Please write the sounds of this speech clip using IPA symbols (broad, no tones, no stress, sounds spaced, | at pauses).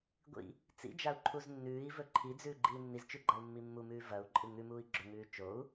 ɡʷ ḭ | t͡s ḭ d͡ʒ a u̯ ǃʰ u z nː ʉː i̯ v ɵ ǃʰ i d͡z ʉː ɡ͡ǃ iː nː i z t͡ʃ ʉ ɡ͡ǃ a u̯ mː i mː u m ʉː v ɐ u̯ ǃʼ ɨ ŋ ʉ m uː i̯ ɡ͡ǁ ɵ ŋ ʉː t͡ʃ o u̯